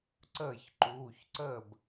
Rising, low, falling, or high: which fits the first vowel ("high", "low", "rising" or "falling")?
falling